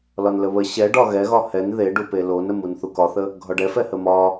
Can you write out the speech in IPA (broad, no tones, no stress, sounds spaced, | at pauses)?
l ɒ n l ə β ə ɕ ɛ ɖ ɒ ɣ ɛ ɣ ɒ h ɛ n ð e ɖ u p e l o n ə m u n θ u k ɒ θ ə | ɡʱ ɒ ɖ ɛ f ɛ h ə m ɒ